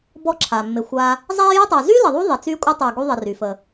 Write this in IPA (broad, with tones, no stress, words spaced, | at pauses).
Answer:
bɔ˦ǁʰa˩ mːɪ˨xʷa˦ | zˤa˥jœ˥tˤu˨ zy˥lə˨ðˤu˦ ðˤɪ˨t͡sy˦kʷʼɪ˦tˤy˨ ɡu˦ðˤə˨ ry˩fə˨